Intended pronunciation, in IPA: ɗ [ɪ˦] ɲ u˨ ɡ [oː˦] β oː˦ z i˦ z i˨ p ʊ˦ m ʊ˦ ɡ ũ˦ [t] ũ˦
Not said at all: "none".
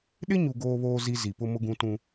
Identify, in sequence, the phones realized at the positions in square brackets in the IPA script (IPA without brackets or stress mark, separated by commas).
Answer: ɪ˦, oː˦, t